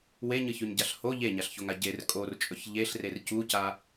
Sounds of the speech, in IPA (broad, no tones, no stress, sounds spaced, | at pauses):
w e ɲ ɨ ç ʉ ɲ ɟ a ɬ h o ʎ e ɲ a ɬ ç o ŋ a ɟ e r kʼ o r t͡ʃʼ ɵ ç ʎ e ɬ r e r c u c a